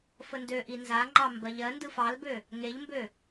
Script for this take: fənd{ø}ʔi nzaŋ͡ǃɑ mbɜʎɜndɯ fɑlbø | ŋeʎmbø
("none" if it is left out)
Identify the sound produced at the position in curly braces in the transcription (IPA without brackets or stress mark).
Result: ø